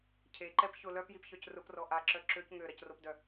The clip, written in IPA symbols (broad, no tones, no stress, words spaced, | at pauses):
cʰeǃɛp çʊ lœpjipçœc rʊprɔ ʔaǁœ ǁøc ŋøɾɐcropdœ